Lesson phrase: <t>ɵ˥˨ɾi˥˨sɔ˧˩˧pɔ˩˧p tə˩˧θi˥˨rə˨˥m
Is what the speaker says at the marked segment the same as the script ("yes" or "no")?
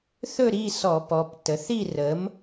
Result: no